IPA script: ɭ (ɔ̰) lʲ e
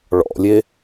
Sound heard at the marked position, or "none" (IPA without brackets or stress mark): ɔ̰